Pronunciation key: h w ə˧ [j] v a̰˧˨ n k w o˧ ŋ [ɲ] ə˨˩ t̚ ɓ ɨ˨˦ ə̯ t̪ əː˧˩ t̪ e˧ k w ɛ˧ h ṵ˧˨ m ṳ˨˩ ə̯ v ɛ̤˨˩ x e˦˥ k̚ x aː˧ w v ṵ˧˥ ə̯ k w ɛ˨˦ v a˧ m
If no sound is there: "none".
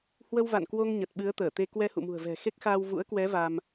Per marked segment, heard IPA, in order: w, ɲ

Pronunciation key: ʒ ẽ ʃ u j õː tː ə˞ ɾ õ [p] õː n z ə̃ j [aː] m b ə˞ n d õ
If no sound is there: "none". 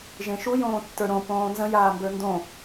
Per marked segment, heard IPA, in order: p, aː

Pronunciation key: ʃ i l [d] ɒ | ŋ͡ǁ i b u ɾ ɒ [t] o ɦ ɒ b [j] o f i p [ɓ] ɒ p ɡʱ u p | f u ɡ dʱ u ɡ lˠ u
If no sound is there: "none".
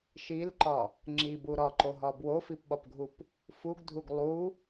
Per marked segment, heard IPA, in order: ǃ, ǃ, w, ɓ

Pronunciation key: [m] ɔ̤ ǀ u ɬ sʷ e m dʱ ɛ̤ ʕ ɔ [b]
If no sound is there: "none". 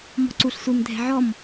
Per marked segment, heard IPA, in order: m, m

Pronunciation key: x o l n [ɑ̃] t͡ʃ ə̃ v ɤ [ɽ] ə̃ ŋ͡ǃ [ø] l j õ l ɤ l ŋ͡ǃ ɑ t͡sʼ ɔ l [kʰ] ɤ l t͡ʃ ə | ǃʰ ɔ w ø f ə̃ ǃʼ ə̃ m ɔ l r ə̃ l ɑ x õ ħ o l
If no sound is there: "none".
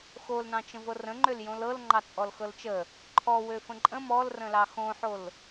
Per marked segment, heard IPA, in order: ɑ̃, r, ø, x

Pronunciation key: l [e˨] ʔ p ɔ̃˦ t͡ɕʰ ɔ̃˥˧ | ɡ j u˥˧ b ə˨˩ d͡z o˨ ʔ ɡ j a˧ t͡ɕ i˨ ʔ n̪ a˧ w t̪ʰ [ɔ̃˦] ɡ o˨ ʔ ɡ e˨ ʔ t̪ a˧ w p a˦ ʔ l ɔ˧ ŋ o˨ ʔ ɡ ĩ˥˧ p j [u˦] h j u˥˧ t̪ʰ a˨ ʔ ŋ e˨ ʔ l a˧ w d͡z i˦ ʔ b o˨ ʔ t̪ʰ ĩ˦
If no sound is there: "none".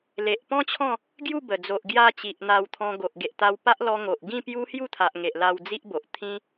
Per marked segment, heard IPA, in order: e˨, ɔ̃˧, u˦

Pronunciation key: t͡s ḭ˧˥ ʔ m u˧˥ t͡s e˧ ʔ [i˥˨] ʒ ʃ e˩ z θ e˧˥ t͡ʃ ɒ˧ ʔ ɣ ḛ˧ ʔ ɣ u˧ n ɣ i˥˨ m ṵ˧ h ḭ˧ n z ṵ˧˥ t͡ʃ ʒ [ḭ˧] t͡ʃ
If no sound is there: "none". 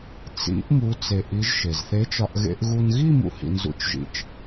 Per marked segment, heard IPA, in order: i˧˥, ḭ˧

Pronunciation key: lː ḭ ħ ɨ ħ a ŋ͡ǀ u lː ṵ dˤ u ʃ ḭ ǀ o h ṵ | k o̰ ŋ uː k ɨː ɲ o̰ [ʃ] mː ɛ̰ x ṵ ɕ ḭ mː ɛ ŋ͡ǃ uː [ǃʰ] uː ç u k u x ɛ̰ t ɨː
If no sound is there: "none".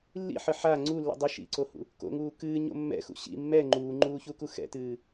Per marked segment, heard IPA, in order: none, ŋ͡ǃ

